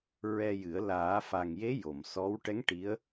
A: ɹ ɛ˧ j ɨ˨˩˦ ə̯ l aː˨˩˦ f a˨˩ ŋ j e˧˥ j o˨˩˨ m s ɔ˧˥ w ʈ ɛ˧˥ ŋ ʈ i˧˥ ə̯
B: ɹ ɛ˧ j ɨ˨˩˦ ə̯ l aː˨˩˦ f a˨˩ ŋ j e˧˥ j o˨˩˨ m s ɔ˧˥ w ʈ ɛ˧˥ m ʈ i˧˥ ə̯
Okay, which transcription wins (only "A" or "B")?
A